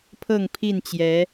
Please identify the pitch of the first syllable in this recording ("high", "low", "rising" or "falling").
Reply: falling